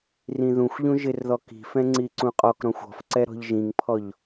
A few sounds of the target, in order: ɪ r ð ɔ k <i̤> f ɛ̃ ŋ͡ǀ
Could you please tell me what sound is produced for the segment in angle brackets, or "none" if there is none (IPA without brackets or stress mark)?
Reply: i̤